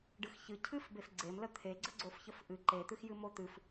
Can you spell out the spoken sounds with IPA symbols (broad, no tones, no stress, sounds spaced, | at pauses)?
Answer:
ɖ ɨ x ç ɨ cʰ ɨ f b e f ɡ͡ǀ e m l ə t̪ʰ e ɡ͡ǀ ə ɡ͡ǀ o f ç ə f ʔ ɨ ǃ e t̪ ɨ x j ɨ m o t̪ ɨ f